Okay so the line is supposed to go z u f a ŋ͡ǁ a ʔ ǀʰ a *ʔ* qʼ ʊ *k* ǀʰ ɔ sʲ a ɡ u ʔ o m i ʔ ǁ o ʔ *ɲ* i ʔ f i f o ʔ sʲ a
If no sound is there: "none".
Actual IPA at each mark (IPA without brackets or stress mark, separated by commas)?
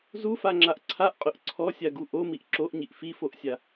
ʔ, ʔ, ɲ